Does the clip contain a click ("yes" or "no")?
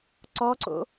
yes